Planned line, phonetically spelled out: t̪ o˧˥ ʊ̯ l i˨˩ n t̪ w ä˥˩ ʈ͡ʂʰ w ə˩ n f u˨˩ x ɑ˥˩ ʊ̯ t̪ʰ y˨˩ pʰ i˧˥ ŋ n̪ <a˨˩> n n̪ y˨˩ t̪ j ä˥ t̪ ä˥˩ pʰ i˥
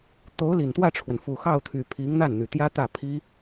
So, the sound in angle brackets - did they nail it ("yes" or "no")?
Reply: no